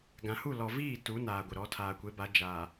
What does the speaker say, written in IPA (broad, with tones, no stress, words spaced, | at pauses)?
ɡã˨hu˦˨ lɔ˨viː˦˨ tu˨˦ naː˨ɡʷɪ˨ɾɔ˨˦ tʰaː˨kʷe˨˦ba˨˦ d͡ʒaː˨